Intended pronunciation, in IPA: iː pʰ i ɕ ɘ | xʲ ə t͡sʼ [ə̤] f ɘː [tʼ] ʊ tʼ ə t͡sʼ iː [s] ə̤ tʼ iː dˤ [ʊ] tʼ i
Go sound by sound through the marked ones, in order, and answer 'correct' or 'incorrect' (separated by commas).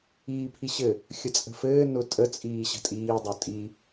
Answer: correct, incorrect, incorrect, correct